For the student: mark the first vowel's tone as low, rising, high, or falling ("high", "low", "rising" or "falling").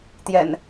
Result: low